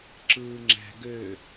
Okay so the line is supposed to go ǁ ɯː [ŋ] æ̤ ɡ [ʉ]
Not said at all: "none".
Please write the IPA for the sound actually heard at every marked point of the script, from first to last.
ŋ͡ǁ, ø

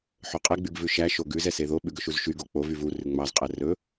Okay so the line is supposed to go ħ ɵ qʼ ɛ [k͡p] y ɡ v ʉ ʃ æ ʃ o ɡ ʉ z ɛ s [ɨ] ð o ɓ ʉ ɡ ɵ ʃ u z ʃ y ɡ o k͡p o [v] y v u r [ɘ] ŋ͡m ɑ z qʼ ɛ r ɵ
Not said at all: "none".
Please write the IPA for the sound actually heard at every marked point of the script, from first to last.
ɡ͡b, e, v, ʉ

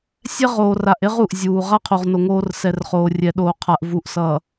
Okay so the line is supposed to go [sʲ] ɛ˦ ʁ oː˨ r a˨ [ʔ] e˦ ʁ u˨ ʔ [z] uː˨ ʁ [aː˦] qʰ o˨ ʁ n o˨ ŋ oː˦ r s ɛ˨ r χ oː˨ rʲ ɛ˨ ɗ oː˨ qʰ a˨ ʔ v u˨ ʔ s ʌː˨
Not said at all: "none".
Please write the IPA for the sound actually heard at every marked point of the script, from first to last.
sʲ, ʔ, zʲ, a˦

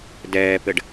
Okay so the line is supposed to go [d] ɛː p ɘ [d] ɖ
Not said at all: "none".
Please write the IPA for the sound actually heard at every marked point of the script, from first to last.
d, none

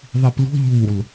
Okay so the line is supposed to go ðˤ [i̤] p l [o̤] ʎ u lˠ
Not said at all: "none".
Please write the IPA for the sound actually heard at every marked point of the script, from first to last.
i, o̤

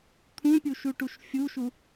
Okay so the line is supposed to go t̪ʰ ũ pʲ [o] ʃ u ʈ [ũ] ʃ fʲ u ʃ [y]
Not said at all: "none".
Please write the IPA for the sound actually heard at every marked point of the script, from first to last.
u, u, u

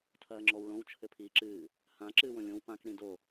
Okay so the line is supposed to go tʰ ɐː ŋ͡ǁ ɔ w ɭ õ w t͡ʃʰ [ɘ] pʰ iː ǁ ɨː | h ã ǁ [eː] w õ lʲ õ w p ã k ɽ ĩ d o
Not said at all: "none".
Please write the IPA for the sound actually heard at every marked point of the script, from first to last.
ɘ, ɨː

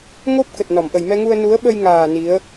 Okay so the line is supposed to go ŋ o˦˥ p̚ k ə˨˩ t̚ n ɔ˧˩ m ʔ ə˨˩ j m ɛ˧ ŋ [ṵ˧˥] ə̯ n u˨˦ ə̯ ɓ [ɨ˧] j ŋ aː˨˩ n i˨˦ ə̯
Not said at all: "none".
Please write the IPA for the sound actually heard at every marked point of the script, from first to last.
u˧, ə˧

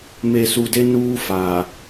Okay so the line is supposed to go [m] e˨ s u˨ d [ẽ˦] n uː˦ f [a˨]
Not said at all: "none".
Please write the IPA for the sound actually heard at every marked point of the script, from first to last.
m, e˦, a˨

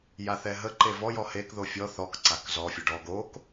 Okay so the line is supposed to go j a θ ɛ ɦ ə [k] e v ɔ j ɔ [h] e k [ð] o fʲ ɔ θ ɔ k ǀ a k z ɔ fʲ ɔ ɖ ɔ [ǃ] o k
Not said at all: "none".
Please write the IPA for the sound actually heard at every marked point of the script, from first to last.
ǃ, h, ð, ɡ

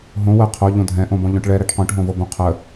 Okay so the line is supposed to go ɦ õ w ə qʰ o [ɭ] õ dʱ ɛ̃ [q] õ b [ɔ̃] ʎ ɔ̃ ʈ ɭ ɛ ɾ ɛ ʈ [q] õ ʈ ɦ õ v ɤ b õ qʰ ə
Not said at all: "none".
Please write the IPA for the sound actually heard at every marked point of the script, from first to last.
ʎ, ʔ, ɔ̃, q

